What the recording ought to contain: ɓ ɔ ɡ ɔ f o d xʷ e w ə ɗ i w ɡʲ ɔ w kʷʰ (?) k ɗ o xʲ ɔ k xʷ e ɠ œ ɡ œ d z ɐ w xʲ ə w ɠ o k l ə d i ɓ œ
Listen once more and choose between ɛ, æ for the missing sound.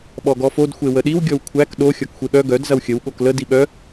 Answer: æ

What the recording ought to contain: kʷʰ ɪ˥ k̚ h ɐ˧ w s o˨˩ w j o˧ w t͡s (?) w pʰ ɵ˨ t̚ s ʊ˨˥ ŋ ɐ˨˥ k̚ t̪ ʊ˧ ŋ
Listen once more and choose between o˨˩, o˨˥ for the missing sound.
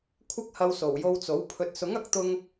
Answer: o˨˥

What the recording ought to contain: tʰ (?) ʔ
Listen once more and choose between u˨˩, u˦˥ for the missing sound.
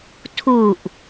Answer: u˨˩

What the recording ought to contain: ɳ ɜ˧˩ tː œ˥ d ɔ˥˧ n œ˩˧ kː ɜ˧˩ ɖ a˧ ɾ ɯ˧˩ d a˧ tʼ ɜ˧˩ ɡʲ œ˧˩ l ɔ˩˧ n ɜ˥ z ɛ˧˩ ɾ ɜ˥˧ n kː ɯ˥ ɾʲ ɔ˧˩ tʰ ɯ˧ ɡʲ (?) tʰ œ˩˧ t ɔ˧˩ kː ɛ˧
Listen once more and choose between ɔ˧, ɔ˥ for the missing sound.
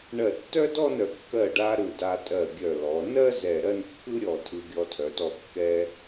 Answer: ɔ˧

